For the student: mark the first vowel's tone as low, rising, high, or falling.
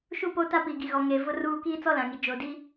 falling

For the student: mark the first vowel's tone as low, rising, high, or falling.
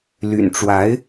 low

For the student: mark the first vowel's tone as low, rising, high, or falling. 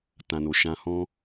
low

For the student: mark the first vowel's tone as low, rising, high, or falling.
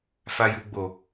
high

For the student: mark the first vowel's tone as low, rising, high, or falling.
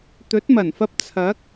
rising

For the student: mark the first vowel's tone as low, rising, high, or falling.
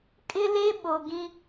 high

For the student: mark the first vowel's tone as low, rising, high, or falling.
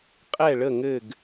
falling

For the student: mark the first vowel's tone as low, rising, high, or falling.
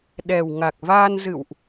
low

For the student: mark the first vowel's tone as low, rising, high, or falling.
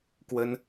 high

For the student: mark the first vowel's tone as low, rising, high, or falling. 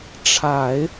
low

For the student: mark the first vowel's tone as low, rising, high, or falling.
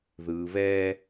low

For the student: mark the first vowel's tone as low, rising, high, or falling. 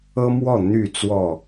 high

